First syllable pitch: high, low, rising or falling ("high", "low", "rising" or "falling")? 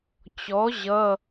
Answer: rising